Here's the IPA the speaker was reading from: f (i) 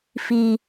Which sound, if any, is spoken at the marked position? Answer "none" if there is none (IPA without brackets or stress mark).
i